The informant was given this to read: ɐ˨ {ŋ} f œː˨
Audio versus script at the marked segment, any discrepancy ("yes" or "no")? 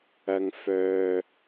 no